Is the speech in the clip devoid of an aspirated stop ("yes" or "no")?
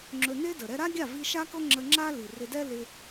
yes